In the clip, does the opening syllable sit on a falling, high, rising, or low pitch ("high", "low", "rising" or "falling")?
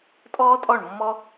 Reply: high